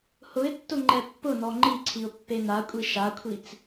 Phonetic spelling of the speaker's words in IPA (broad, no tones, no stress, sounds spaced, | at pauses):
h ʊ ɪ̯ tː ʊ ŋ͡ǃ ɛ pː ʊ n ɔ ŋ͡ǃ i ǀʰ i ʊ̯ pː e n a kʷʼ i ʃ a kʷʰ i t͡s